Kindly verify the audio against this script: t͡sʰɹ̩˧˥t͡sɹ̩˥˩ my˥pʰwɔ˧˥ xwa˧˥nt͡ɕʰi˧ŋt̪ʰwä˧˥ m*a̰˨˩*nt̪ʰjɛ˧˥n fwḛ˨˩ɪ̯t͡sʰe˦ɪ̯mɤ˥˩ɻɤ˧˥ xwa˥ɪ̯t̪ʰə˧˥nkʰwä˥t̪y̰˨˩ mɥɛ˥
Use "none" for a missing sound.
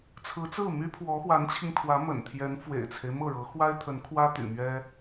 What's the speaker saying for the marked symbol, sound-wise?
ə̰˨˩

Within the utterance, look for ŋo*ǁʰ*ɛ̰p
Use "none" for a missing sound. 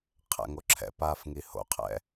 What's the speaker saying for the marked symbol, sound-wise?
ǁʰ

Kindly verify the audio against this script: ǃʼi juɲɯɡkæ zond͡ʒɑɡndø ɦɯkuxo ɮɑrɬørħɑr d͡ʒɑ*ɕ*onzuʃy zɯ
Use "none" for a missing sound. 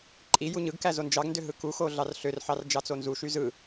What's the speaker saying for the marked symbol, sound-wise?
t͡s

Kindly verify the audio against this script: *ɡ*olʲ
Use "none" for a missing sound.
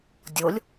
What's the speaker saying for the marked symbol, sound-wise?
dʲ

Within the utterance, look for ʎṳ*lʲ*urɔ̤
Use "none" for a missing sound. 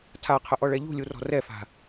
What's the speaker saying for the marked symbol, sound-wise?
lʲ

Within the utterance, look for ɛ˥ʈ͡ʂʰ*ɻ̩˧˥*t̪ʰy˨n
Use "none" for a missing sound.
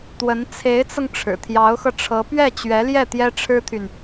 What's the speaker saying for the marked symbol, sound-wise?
ɻ̩˥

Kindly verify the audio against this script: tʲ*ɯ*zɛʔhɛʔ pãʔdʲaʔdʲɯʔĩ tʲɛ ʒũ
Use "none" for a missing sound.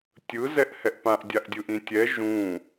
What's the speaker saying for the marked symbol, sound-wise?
ɯ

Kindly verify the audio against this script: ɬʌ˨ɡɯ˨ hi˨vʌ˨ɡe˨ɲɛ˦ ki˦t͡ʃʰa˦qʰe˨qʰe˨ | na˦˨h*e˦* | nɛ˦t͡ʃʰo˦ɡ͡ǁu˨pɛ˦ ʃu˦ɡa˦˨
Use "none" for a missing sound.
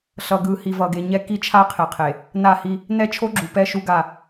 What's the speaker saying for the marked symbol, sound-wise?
i˦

